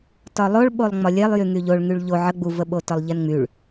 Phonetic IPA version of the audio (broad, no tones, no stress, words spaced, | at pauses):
tɒlˠoɭɓolˠ ŋ͡mɒlʲɛlˠ jyŋyʎoɭ ŋyɭʎo ʕə ɡ͡buvəɓo tɒlˠʎɛnŋ͡myɭ